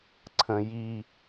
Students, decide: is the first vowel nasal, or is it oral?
nasal